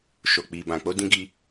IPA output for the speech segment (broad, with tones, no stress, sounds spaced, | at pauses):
ʃ o˨ k͡p i˨ b ã˨ k͡p o˧ d ĩ˧ ɡ i˧